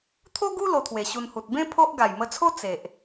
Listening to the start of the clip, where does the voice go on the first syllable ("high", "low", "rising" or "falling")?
high